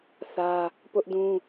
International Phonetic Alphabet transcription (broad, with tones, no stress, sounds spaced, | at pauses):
θ ä˦ | p ʊ˦ ʔ d ũ˦